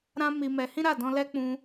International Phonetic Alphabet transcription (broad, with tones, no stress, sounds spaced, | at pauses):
ɾ ã˦ m i˧ m ɛ˧ h ĩ˦ ɾ a˦˨ d ɔ̃˧ l ɛ˦ k͡p ũ˧